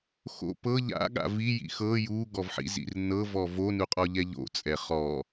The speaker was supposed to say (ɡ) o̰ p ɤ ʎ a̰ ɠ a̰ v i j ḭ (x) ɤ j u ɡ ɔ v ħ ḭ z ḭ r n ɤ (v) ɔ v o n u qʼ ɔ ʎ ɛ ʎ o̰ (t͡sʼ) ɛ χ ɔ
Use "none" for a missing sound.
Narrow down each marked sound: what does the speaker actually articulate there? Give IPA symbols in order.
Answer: x, x, v, t͡sʼ

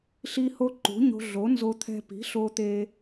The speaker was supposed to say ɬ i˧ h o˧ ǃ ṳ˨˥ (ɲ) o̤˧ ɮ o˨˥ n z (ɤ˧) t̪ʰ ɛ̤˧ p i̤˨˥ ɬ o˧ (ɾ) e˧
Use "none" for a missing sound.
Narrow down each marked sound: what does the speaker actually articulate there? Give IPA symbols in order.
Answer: ɲ, o˧, t̪

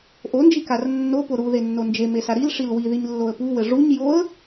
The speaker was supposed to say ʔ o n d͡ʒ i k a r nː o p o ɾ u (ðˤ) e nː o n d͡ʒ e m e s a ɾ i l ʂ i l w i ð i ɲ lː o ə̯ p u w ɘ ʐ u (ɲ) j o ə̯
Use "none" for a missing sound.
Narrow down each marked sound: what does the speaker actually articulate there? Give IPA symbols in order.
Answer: ð, ɲ

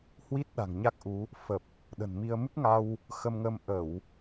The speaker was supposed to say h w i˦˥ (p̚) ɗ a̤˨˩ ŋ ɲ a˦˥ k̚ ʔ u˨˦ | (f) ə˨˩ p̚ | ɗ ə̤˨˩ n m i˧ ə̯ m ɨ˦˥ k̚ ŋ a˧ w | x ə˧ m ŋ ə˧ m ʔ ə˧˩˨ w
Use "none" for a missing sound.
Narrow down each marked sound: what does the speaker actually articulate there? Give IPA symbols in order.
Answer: t̚, f

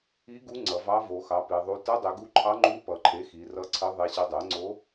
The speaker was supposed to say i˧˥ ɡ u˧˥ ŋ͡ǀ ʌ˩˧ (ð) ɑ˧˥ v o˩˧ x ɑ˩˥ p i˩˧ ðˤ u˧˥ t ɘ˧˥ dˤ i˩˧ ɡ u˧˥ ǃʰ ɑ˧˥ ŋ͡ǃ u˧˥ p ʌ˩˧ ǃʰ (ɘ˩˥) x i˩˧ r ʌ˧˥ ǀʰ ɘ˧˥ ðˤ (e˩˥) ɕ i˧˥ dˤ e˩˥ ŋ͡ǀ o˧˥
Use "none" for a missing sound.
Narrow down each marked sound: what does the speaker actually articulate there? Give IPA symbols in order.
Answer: v, e˩˥, e˧˥

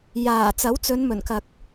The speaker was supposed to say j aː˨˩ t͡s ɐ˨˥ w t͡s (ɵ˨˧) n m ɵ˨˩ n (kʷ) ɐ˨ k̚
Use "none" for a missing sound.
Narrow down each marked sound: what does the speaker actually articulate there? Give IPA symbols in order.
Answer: ɵ˨˧, k

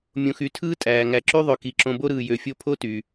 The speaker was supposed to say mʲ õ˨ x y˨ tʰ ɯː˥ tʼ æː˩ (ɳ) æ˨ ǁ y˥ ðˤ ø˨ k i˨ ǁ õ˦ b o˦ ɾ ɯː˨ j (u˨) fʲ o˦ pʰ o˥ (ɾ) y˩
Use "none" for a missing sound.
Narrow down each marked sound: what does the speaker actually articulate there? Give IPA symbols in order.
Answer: ŋ, ø˨, t

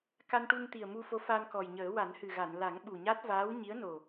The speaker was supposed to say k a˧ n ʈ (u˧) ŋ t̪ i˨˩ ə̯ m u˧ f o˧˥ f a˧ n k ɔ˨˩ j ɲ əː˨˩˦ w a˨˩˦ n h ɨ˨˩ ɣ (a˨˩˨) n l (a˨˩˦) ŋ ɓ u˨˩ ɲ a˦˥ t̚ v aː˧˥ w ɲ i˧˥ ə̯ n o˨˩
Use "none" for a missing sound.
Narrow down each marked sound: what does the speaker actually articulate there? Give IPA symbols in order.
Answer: u˧, a˨˩˨, a˨˩˦

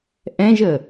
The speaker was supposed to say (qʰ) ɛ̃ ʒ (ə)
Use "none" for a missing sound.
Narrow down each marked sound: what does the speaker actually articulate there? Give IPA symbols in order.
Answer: ʔ, ə

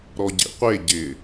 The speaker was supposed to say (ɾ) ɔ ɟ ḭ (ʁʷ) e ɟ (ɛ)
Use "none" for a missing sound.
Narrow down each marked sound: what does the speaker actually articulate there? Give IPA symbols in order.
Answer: ɾ, qʷ, ɪ

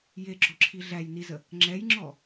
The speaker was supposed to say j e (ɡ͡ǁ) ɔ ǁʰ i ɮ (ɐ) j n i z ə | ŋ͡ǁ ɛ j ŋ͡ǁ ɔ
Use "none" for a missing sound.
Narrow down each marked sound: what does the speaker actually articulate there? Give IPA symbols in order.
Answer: ɡ͡ǁ, æ

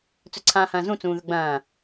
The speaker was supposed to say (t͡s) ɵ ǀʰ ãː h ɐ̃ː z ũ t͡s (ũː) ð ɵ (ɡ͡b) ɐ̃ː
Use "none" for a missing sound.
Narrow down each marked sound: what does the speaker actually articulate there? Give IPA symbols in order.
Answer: t͡s, ũː, ɡ͡b

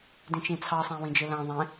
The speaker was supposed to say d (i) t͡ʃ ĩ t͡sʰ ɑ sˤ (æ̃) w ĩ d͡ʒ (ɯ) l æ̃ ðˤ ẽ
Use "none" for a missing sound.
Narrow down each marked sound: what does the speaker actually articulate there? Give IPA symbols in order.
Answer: ĩ, æ̃, ɯ

